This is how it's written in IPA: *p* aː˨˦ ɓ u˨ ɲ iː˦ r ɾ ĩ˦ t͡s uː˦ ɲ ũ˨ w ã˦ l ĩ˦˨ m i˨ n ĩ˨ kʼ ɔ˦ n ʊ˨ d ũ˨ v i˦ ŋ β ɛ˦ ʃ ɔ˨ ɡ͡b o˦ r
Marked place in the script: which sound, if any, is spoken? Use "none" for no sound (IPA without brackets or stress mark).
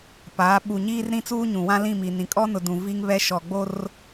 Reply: p